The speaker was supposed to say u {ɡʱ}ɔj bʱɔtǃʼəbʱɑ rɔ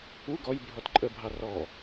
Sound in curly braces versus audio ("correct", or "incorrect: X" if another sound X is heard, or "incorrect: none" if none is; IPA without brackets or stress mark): incorrect: ɡ